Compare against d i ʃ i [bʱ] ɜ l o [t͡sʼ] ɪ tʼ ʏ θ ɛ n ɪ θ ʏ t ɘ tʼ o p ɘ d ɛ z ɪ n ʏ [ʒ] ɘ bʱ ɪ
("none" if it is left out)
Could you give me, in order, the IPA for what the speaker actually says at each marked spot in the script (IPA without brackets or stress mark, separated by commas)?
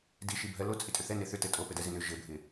bʱ, t͡sʼ, ʒ